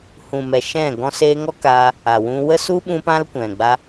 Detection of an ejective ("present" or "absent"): absent